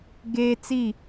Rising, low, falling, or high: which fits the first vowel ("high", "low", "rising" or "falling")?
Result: high